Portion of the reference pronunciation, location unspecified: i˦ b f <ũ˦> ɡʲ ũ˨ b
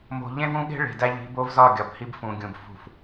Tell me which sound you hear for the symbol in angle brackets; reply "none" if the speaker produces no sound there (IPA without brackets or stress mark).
ũ˨